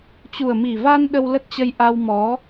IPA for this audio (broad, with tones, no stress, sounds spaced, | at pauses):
t͡ɕ u˨˩ ə̯ m i˨˩ v a˧ n ɗ ə˧ w l ə˦˥ t̚ t͡ɕ ə˧ j ʔ a˧ w m ɔ˨˦